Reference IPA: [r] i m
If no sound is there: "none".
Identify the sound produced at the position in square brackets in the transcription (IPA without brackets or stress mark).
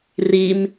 r